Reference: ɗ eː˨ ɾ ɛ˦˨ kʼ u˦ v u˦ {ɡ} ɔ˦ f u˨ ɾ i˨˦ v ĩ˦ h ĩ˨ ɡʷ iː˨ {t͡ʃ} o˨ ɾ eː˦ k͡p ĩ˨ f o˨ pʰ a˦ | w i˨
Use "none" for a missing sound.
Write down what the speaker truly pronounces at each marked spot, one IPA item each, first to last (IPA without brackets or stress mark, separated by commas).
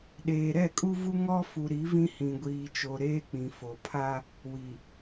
ŋ, t͡ʃ